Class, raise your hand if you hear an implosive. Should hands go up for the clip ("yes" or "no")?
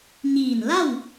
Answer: no